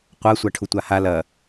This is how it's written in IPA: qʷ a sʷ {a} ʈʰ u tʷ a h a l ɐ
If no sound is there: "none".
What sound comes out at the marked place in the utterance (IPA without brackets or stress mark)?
a